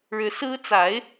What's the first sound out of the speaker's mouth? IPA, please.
ɻ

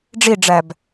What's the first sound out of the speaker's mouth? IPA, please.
ɖ͡ʐ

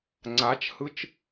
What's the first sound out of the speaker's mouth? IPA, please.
ŋ͡ǀ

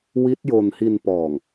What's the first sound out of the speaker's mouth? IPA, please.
w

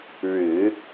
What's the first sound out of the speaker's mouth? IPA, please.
ɻ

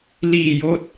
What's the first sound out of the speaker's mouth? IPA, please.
l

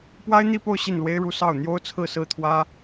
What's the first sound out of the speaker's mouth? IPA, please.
p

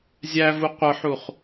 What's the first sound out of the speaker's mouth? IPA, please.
zʲ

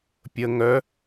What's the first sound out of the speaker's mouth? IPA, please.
pʲ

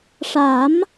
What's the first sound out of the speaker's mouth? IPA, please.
ʂ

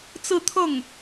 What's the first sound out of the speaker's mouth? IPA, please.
t͡s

